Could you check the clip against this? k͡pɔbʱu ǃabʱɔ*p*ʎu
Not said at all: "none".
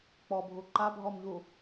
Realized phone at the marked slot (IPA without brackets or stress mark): m